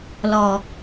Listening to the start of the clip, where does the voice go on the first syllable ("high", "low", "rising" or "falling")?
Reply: low